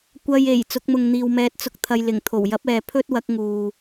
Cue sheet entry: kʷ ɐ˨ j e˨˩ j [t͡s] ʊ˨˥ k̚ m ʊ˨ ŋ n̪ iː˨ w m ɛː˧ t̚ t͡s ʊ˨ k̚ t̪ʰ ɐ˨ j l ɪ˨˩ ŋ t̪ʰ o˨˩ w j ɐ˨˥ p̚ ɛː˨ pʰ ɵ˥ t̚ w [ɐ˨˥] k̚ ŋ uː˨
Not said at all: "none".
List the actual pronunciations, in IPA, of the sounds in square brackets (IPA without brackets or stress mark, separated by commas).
t͡s, ɐ˨˥